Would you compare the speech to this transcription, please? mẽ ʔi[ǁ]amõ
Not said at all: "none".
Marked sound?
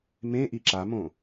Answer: ǁ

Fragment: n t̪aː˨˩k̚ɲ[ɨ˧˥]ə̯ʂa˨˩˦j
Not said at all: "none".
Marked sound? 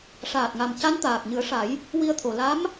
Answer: ɨ˨˩˦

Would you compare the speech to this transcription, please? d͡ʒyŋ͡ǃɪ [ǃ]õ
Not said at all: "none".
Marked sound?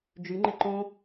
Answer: ǃ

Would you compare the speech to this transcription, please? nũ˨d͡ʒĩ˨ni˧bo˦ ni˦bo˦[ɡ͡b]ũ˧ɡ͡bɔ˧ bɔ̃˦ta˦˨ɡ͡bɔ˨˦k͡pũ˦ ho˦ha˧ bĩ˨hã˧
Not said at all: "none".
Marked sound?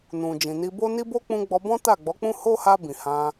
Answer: k͡p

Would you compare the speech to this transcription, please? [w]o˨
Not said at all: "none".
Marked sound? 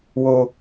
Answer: w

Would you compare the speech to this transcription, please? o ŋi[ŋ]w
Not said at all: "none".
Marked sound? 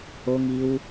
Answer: none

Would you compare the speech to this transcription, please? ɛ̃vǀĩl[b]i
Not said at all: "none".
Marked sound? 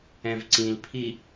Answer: pʰ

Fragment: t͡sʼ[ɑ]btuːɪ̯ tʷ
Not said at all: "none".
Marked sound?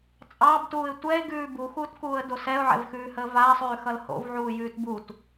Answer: ɑ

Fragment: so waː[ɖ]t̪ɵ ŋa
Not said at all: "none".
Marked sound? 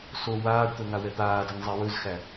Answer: ɖ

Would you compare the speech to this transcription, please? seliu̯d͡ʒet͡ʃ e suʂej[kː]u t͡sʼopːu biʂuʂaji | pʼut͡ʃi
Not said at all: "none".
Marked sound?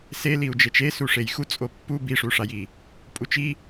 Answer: x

